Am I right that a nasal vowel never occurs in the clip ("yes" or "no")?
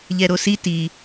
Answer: yes